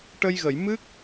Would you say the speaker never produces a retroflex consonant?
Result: no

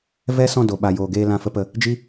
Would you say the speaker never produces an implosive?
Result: no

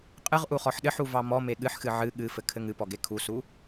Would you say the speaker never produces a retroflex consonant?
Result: yes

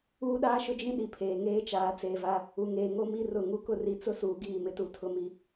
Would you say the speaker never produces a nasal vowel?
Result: no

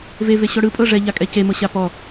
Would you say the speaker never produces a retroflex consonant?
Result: no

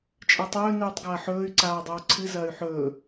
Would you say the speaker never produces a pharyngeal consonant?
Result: no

